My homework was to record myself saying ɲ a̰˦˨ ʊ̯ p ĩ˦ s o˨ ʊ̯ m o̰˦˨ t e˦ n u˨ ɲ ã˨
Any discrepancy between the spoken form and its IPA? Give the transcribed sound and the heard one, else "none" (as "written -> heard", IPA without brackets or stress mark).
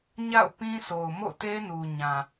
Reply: none